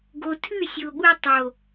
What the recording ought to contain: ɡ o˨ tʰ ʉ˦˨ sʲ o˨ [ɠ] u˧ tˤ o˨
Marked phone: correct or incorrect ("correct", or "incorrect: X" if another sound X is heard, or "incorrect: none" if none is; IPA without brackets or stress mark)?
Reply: correct